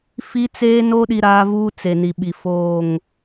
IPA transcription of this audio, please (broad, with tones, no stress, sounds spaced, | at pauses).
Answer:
f i˦ t͡s eː˦ n o˦ ɗ i˦ ɾ aː˦ v uː˦ t͡s e˨ n i˨ ɓ i˨ f oː˦˨ ŋ